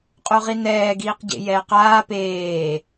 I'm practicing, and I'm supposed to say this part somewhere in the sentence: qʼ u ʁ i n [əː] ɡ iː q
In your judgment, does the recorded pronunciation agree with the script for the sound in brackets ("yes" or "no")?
no